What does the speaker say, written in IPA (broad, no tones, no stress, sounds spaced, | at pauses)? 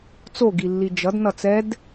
t͡s o ɡ i lː i d͡ʒ ʌ d n ʌ t͡s ɛ d